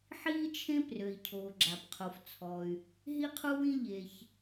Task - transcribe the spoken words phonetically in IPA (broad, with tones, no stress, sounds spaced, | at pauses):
ħ iː˥ t͡ʃʰ ẽ˥ p r ø˩ i̯ cʰ oː˩ ɡ͡ǁ a˩ p qʰ o˩ f t͡sʰ ɔ˩ y̯ | ɦ i˥ qʰ u˥ w ĩ˥ ʎ e˩ ç